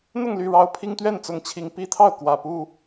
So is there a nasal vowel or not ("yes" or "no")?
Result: no